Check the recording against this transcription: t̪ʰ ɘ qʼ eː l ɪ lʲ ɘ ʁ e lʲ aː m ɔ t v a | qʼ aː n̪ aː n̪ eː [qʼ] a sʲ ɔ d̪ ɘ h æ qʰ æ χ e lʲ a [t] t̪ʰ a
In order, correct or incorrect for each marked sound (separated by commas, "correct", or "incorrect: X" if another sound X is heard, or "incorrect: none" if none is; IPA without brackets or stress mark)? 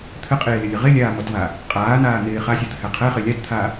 incorrect: χ, correct